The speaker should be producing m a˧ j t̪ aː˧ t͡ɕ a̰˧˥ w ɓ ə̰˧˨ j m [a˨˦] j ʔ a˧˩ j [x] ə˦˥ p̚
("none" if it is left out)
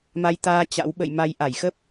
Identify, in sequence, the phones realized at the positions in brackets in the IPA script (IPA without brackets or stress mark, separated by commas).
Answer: a˨˦, x